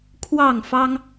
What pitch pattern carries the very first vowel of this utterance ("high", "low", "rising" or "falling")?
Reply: falling